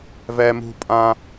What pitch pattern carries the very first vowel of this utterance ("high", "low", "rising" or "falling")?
high